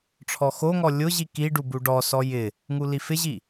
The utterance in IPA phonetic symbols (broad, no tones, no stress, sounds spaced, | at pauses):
ʈ͡ʂʰ ɔ x o ŋ ɔ lʲ ʊ ʑ i k i ɖ u b u ɖ ɔ s ɔ j ɪ | ŋ u l i f ɪ ʑ i